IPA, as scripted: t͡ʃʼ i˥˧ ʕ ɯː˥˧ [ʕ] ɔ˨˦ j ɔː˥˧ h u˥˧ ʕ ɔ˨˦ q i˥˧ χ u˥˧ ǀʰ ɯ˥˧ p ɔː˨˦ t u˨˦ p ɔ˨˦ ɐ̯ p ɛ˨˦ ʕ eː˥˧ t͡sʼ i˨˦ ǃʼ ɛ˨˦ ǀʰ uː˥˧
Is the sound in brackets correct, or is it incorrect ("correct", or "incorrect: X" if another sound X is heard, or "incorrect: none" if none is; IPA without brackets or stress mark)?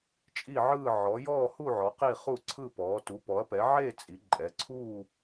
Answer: correct